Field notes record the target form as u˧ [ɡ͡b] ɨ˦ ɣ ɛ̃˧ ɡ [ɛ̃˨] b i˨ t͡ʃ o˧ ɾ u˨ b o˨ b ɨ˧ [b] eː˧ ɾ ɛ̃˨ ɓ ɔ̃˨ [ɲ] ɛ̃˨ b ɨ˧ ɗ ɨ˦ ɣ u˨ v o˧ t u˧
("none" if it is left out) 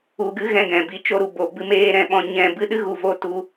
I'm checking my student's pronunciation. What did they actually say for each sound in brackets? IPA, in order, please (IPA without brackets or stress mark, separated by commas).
ɡ, ɛ̃˨, m, ɲ